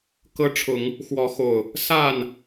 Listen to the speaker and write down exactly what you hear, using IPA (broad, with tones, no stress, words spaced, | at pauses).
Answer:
kɤ˦ ʈ͡ʂʰʊ˨˦ŋ | xwɔ˨˦xo˨˩ʊ̯ | sa˥˨n